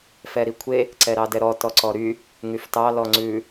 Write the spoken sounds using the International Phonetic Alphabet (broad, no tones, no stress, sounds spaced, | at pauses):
f ɛ ɾ i kʷʰ e | ǀ ɛ ɾ ɑ d ɛ ɾ ɔ t ɔ ǀ ɔ ɾ y | ŋ y f t ɑ l ɔ ŋ͡ǀ ʉ